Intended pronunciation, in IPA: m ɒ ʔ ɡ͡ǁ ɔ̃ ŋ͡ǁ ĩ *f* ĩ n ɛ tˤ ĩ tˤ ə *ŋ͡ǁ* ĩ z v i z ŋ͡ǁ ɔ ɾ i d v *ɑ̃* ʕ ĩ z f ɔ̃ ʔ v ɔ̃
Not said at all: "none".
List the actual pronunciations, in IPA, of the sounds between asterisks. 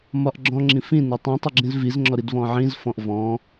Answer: f, ɡ͡ǁ, ɔ̃

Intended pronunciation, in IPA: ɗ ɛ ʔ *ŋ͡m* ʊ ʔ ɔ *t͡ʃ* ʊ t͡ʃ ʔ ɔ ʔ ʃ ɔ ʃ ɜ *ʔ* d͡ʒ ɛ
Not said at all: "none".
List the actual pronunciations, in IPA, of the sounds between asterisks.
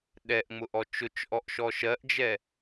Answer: ŋ͡m, t͡ʃ, ʔ

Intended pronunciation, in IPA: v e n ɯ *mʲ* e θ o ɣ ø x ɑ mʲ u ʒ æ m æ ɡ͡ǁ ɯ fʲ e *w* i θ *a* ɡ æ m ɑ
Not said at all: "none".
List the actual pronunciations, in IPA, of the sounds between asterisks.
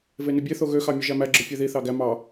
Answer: bʲ, ð, ɑ

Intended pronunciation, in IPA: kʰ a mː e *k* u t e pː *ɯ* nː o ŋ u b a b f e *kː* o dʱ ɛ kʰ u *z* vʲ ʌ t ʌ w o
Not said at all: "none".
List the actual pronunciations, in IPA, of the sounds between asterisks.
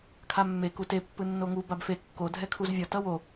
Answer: k, ɯ, kː, z

